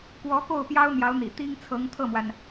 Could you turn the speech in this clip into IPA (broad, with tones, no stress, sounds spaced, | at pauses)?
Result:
k w ɔ˧˥ k o˥˩ ʊ̯ p j ɑ˥ ʊ̯ n̪ j ɑ˧˥ ʊ̯ n̪ ḭ˨˩ t̪ i˥ ŋ t͡sʰ ɤ˧˥ ŋ t̪ʰ ɤ˥˩ m w a˩ n